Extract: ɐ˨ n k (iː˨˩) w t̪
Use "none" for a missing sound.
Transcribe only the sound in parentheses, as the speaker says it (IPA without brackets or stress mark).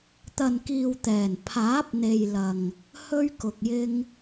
iː˨